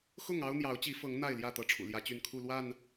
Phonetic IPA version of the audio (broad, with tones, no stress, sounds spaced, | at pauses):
x ʊ˥˨ ŋ ɑ˦ ʊ̯ n̪ j ɑ˨˦ ʊ̯ t͡ɕ i˨˦ f ɤ˨˦ ŋ n̪ a˥˨ ɪ̯ l j ä˥˨ t̪ ɤ˦ ʈ͡ʂʰ ṵ˨˩ l j ä˦ t͡ɕ y˥˨ n kʰ u˥˨ l w a˥˨ n